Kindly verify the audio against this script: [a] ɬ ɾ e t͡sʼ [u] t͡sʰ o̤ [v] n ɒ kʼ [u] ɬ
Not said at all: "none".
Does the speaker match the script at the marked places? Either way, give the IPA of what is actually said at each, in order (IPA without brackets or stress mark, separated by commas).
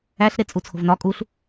æ, u, v, u